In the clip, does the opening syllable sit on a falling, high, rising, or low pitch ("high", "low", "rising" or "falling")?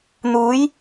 rising